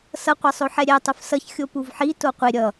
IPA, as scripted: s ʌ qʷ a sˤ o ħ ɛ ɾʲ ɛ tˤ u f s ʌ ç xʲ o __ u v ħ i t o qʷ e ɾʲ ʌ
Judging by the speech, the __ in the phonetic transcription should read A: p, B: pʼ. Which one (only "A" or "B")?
A